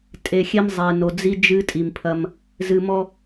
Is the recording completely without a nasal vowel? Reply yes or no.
yes